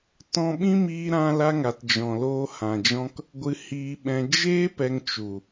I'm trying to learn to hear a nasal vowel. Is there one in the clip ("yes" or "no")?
yes